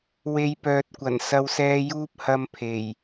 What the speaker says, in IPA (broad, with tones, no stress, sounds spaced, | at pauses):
w e˨˧ j p œː˨ t̚ kʷ ɐ˨˩ n s ɐ˨ w s ɛː˨ j uː˧ p̚ h ɐ˧ m pʰ e˨˩ j